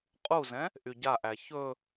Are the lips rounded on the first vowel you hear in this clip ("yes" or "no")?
yes